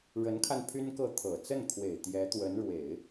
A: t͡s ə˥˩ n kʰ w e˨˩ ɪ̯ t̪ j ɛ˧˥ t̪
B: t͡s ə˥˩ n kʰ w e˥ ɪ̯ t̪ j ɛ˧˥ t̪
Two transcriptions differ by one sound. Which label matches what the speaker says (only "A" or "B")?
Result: A